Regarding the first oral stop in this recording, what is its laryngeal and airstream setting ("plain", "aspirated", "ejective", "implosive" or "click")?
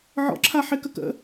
click